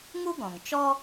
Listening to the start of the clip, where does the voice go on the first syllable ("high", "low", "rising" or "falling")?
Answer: high